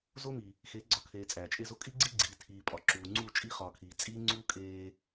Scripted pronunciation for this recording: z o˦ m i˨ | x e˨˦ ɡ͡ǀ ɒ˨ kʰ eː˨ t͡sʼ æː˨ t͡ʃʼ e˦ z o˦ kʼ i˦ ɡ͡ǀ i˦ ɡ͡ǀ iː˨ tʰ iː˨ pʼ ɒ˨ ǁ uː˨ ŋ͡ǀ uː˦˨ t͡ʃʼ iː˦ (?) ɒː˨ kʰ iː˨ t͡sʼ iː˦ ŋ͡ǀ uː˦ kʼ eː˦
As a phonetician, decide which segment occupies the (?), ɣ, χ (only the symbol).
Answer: χ